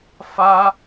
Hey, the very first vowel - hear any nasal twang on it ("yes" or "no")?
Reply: no